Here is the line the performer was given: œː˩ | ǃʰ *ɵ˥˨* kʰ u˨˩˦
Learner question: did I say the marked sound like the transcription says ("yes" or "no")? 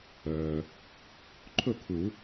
yes